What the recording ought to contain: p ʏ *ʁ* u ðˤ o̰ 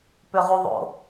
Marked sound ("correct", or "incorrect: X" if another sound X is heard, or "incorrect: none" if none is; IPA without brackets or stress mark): correct